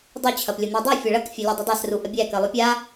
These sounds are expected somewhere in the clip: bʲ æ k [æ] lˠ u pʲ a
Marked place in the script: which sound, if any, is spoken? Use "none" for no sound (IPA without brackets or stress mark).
ɜ